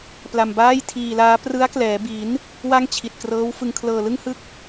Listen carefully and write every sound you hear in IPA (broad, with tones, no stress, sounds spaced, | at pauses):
p l a˧ m b aː˥˩ j tʰ iː˧ l aː˦˥ p r ɯ˦˥ a̯ k l ɛː˩˦ b i˩˦ n | w a˥˩ ŋ t͡ɕʰ i˨˩ t̚ k r ɤː˦˥ w f ɯ˧ ŋ kʰ l ɤː˧ l ɯ˥˩ ŋ h ɯ˥˩ k̚